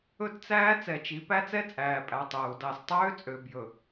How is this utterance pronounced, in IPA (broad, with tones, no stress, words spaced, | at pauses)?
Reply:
ɵ˦tt͡sæː˦ t͡sɛ˨t͡ʃi˨˦ pæ˦t͡sɛ˦t͡sʼæː˨pʼæ˨ tˤɵː˨u̯dɑ˦˨s tˤøː˦t͡sʼø˨bjɵ˨